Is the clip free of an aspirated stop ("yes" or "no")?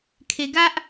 no